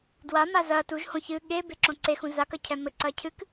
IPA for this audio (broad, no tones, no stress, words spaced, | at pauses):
dwama zɐ tuʒhõ çɨ ɠe beǁõǀexũ zakɐ cʰɛmɘ ǀɐcʰɨk